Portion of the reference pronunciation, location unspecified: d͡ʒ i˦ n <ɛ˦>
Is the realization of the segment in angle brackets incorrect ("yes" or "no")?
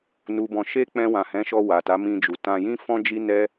no